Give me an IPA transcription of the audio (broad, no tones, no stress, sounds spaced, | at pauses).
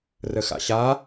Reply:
r ə x a̰ ɕ a